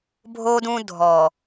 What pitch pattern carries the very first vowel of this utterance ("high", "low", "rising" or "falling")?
high